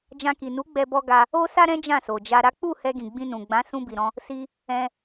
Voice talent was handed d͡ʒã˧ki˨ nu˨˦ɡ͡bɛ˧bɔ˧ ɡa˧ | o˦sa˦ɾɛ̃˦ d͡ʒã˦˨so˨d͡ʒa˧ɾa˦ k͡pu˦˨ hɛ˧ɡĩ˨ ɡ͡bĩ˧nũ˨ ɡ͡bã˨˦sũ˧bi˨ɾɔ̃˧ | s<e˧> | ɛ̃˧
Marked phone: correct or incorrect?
incorrect: i˧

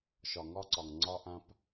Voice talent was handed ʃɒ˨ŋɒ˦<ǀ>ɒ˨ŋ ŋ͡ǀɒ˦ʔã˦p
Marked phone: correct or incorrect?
correct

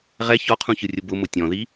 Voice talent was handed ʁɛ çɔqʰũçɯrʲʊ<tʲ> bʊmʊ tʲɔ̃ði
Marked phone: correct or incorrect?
incorrect: none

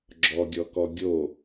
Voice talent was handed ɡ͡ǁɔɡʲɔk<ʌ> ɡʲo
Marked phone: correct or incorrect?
incorrect: ɔ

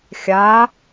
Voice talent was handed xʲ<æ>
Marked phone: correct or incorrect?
incorrect: a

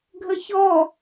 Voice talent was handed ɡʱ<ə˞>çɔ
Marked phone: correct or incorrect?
incorrect: ə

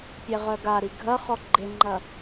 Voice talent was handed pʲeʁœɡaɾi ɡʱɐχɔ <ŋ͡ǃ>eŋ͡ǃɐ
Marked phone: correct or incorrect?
incorrect: ɡ͡ǃ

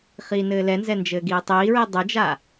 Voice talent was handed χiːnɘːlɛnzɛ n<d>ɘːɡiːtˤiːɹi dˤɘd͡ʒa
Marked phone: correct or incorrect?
incorrect: d͡ʒ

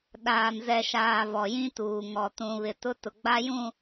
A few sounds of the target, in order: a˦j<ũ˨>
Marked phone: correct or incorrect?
incorrect: ũ˦˨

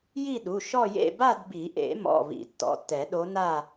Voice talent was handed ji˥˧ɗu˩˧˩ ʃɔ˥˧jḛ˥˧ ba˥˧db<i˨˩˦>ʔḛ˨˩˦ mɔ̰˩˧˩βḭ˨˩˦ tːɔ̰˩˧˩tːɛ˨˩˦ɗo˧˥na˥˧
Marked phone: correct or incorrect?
correct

